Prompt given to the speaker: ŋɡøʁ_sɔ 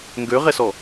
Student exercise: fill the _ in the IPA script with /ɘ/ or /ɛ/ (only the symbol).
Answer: ɛ